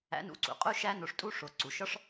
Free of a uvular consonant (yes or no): no